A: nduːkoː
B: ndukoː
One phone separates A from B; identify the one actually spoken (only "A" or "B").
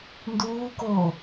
A